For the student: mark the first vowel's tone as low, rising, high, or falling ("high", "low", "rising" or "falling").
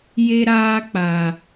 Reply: high